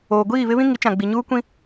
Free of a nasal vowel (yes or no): no